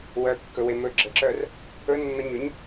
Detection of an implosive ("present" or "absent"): absent